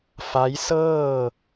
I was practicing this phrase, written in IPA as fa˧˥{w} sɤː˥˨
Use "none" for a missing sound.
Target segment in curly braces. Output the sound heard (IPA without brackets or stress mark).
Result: j